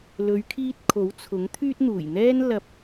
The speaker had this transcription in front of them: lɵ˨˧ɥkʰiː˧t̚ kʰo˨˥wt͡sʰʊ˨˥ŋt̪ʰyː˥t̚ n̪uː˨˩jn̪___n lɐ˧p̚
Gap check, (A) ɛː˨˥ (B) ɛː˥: B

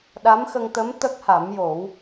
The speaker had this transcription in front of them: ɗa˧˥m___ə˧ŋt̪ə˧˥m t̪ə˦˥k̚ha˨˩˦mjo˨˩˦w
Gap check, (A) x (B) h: A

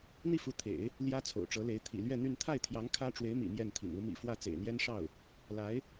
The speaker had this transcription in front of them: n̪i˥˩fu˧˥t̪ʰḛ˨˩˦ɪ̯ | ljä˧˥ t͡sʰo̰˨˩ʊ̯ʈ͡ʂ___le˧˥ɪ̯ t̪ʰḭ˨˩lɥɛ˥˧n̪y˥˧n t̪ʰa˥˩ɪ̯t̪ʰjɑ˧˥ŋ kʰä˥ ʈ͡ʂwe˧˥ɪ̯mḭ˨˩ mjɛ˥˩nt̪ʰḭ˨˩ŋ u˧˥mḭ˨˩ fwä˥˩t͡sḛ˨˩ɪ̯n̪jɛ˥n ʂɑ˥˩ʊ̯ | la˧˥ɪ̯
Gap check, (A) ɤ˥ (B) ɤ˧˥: B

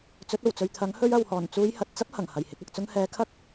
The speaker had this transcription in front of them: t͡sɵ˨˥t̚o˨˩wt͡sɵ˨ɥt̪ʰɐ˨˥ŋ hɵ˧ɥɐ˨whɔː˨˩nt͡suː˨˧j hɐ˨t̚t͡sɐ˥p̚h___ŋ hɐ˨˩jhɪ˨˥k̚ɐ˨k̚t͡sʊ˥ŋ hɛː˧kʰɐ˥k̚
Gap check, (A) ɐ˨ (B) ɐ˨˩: B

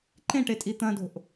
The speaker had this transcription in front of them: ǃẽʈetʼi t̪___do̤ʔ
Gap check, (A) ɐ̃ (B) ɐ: A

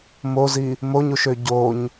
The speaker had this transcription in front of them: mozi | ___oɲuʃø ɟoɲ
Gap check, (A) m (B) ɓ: A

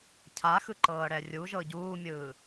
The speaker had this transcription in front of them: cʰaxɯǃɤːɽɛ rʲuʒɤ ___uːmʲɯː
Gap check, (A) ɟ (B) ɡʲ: A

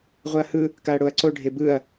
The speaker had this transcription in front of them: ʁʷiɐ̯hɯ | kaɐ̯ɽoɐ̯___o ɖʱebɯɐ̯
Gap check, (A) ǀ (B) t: A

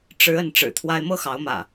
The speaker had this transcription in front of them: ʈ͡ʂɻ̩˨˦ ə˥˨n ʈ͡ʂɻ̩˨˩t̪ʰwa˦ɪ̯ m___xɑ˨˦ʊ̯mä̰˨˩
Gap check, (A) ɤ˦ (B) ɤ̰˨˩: A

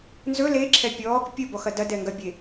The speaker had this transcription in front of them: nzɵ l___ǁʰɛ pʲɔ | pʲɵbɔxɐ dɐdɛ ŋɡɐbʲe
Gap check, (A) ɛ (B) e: B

